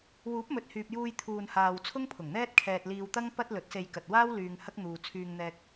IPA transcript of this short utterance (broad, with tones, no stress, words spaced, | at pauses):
wuː˨˥p̚mɵ˨t̚hyː˨p̚juː˧j t̪ʰuː˨nhaː˨w t͡sʰʊ˥ŋpʰʊ˨˩ŋn̪ɛː˥t̚kʰɛː˧t̚ liː˧wt̪ɐ˥ŋ pɐ˥t̚ lɵ˨˥t̚se˧j kɐ˨t̚waː˥w lyː˧ŋhɐ˥k̚ n̪uː˧ t͡sʰyː˧ŋn̪ɛː˧k̚